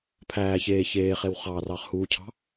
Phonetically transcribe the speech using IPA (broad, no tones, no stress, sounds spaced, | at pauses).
pʰ æː ç eː ç eː χ e w χ ɑː r ɑː χ h uː cʰ ɑ̤